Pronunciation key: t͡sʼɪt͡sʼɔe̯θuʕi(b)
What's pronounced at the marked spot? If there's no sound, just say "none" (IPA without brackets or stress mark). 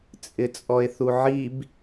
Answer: b